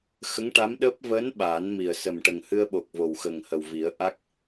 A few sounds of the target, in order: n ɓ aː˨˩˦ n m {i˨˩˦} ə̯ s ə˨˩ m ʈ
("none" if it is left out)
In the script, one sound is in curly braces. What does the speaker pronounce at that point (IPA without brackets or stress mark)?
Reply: i˨˩